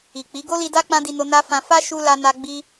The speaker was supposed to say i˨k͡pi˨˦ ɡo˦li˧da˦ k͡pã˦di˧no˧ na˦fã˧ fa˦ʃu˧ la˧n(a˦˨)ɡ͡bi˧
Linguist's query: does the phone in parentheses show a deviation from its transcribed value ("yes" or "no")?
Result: yes